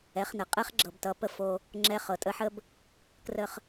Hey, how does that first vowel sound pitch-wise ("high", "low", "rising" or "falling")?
rising